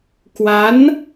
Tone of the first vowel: rising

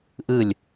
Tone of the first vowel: falling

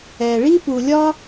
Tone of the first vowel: low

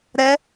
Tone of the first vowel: rising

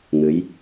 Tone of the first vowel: rising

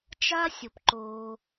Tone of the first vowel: high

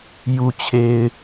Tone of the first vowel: low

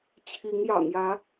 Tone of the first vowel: rising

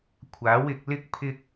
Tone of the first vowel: rising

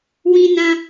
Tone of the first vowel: high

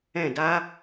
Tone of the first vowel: falling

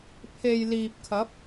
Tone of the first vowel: low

